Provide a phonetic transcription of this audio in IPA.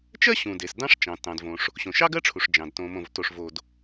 t͡ʃ ɜ˥ ɕ ũ˩ d e˩ s d ɑ̃˥ ʂ t͡ʃ ɑ̃˩ t ɑ̃˩ d v õ˩ ʂ | ɕ õ˩ ʃ ɑ˥ ɡ ɜ˥ ʈ͡ʂʰ u˩ ʂ d͡ʒ ɑ̃˩ d t õ˩ m õ˩ v t o˩ ʂ v o˩ d

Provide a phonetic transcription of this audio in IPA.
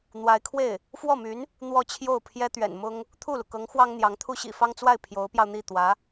n̪ w a˧˥ ɪ̯ kʰ w e˥˩ ɪ̯ | f w ɔ˥˩ m y˧˥ n | n̪ w ɔ˥˧ t͡ɕʰ j o˥˩ ʊ̯ pʰ j ɛ˥ t̪ ɥ ɛ̰˨˩ n m ʊ˥ ŋ | t̪ʰ u˥˩ l u˩ k ɤ˧˥ ŋ x w ɑ˥ ŋ n̪ j ɑ˧˥ ŋ t̪ʰ u˥ ɕ ḭ˨˩ f ɑ˥ ŋ t͡s w a˥˩ ɪ̯ pʰ j o˧˥ ʊ̯ p j ɑ˧ ʊ̯ n̪ i˥˩ t̪ w ä˧˥

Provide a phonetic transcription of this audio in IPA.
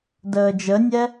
d əː d͡ʒ ə nʲ ɛ

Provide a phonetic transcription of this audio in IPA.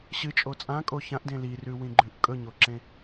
ɕ ɨ t͡ʃʼ o t͡sʼ ã kʼ o ç ã ʔ d ẽ l i r ʉ w ĩ ɡ͡ǃ ʉ ʔ kʼ ɵ ɲ o ǁ ẽ

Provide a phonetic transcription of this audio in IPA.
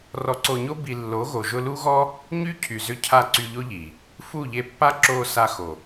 r ɔ˧ ǀ o˧ ɲ o˦ b i˧ lː o˨˦ ɣ o˨ ʒ ʊ˧ l u˦ ɣ ɔ˦ | ɲ y˦ cʰ y˨ z ʏ˧ cʰ a˧ ǀ y˧ ʎ o˦ ʎ i˨ | f u˦˨ ʎ e˧ pː a˦ ǁ o˧ s a˧ x o˨

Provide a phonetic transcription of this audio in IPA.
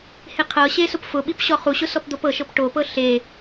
h e qʰ ɤ ɕ e s ʊ p f ʊ ɓ i p ɕ ɔ χ u ɕ ʊ s ɔ p d̪ o p ɤ ʃ ɤ p ʈ o p ɤ ɬ e

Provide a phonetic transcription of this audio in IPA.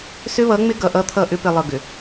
s ʏ˦ β ʌ˨˦ ŋ͡m ɪ˦ ɡ ʌ˨ ʔ ʌ˦ t̪ʰ ʌ˦˨ ʔ ʏ˦ p ɪ˨ lˠ ɤ˨ ɡ ʏ˨

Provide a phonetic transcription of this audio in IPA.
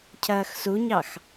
cʰ ɐː x s u ɲ ɑ x

